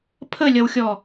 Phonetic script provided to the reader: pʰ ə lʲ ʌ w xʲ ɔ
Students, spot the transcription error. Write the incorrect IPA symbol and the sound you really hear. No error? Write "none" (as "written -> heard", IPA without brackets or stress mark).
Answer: none